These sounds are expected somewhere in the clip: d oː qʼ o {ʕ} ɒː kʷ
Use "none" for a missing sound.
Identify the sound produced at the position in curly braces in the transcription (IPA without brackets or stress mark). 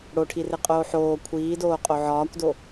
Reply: ʕ